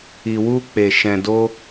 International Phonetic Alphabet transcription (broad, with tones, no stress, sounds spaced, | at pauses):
i˨ w u˧ k͡p e˨ ʃ ɛ̃˨ d o˧